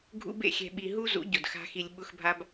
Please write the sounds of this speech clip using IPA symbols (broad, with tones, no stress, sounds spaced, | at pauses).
ɡʱ ṵ˦ b ḛ˨ xʲ ɛ̤˧ ɓ i˧ ɦ u˦ z ṵ˨˦ ɟ ʊ˨ d x a̤˦ x i˧ lʲ ɓ ʊ˦ x bʱ a˦ b